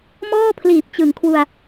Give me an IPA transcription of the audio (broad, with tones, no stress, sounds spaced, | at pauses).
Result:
m ɔː˥˩ pʰ l iː˨˩ p̚ t͡ɕ ɯ˩˦ ŋ kʰ w u˧ a̯